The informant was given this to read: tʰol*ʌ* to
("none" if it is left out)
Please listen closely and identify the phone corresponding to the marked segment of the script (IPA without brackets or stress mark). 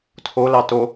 ɑ